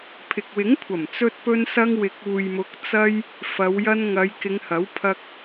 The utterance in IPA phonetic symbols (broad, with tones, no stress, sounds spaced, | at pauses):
pʰ ɪ˨ k̚ w ɪ˨˥ ŋ kʷʰ ɐ˨˩ m t͡s ɵ˧ t̚ p ɵ˧ n s ɐ˧ ŋ w ɪ˨ k̚ uː˨ j m ʊ˨˥ k̚ t͡s ɐ˧ j | f ɐ˨˧ w j ɐ˧ n ŋ ɐ˨˧ j k ɪ˨˧ ŋ h ɐ˨˥ w pʰ ɐ˧ k̚